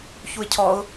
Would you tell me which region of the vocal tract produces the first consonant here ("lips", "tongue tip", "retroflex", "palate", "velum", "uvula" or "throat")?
palate